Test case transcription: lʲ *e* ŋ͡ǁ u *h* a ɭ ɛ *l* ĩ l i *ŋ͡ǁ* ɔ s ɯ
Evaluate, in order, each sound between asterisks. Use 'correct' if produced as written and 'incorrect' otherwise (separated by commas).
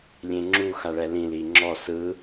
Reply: incorrect, incorrect, correct, correct